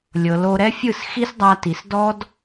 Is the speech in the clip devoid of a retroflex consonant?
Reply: yes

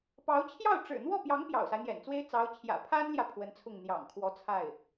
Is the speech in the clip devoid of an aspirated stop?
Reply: no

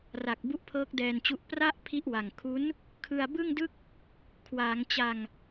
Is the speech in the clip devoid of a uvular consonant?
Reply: yes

